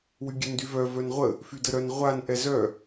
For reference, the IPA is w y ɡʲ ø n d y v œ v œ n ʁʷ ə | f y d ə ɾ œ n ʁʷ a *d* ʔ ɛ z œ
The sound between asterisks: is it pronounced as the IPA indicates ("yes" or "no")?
no